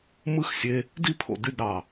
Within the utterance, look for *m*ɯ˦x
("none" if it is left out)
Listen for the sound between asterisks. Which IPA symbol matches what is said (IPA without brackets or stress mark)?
m